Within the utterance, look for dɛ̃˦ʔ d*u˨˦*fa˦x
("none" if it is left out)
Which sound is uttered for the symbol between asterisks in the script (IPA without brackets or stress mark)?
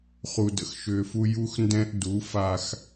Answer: u˨˦